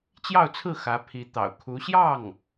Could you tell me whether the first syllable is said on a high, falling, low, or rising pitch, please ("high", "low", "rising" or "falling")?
falling